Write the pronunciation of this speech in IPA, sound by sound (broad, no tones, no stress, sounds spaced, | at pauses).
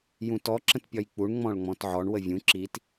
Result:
j ũ t ɔ ǁ ə̃ t pʲ ɒ j k͡p u ɳ ŋ͡m ɔ̃ ɭ ŋ͡m ɔ̃ t ʕ ɔ ɳ w ə vʲ ũ ǁ i t